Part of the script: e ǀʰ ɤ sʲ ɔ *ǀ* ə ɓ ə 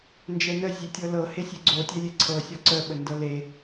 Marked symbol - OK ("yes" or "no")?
yes